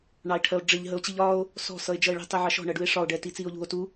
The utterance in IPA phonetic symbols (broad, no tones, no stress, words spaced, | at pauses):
ɳɑe̯ʈʰɜo̯ɖ͡ʐɪʎ ɦəo̯t͡ɕiʎɒːo̯ | sɔ̤ sʌe̯d͡ʒʌe̯ɭi̤ tˤiʕɑʃɔ̤ ɳɜɖue̯ʂɒo̯ ɖɛːtit͡siːo̯ʎṳo̯ tu